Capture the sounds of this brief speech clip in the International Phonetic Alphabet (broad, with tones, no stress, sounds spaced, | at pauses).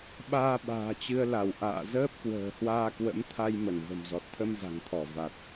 ɓ aː˧ ɓ a̤ː˨˩ t͡ɕ ɨ˧ ə̯ l a˧˩ w ʔ a̰ː˧˨ z əː˦˥ p̚ k w ə̤ː˨˩ h w aː˧ k w ə̰˧˥ m t̪ʰ a˧ j m ə˧˩ n v ə̤˨˩ m z ɔ˨˩ t̚ t̪ʰ ə˧ m z a̤˨˩ ŋ t̪ʰ ɔ˧˩ v a˨˩ t̚